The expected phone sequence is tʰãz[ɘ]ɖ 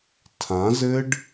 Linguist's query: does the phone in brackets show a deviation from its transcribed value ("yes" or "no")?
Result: no